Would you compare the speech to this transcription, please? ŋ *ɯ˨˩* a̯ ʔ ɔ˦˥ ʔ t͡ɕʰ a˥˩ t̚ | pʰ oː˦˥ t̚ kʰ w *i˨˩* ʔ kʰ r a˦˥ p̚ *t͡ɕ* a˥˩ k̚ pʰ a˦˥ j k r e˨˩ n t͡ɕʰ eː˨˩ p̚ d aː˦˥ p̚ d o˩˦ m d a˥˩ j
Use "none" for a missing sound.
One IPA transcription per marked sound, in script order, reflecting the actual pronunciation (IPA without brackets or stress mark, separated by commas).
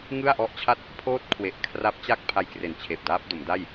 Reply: ɯ˥˩, e˨˩, t͡ɕ